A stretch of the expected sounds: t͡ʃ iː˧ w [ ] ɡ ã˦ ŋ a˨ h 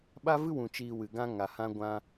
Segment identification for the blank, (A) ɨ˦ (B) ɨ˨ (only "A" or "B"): B